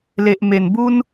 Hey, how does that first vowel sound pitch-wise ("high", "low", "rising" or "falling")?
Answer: low